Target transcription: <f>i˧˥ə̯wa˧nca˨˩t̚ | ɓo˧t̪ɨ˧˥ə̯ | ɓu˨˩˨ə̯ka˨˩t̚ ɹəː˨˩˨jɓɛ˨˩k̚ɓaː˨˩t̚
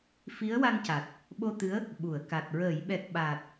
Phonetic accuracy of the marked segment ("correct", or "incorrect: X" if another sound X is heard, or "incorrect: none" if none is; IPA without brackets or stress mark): correct